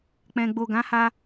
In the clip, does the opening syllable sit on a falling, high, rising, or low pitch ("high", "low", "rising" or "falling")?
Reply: low